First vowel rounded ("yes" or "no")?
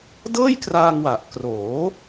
no